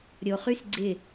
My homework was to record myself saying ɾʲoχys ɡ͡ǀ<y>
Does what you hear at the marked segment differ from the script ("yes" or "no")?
yes